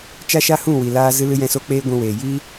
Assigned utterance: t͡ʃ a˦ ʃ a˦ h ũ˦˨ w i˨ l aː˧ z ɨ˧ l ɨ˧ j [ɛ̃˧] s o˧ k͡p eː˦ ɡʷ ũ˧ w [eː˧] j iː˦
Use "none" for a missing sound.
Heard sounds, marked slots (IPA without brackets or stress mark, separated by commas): ɛ̃˧, eː˨